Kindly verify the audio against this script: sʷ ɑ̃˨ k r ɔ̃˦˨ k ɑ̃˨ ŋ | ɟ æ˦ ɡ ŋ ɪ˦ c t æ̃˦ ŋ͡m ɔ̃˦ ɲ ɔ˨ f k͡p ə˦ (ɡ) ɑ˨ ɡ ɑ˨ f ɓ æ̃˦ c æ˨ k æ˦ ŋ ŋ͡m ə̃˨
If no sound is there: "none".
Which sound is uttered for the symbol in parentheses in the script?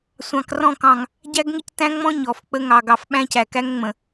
ŋ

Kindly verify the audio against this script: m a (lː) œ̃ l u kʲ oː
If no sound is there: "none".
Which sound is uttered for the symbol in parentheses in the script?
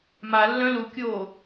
lː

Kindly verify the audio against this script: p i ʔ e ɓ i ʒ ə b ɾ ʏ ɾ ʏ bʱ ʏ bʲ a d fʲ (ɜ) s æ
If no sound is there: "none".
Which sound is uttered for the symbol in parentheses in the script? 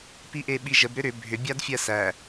ɜ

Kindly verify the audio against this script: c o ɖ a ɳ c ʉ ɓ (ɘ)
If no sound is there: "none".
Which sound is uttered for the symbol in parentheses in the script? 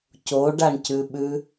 ʉ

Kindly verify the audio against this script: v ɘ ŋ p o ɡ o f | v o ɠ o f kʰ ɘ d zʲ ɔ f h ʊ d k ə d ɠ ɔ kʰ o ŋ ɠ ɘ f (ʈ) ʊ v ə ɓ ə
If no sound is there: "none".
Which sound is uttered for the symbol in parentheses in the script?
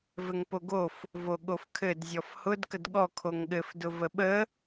d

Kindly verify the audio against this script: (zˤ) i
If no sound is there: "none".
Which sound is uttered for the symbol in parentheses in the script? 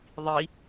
ðˤ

